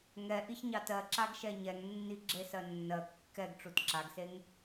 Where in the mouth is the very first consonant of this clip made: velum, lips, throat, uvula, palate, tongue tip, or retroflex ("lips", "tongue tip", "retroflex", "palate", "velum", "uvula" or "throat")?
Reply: velum